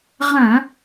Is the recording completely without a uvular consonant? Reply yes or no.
no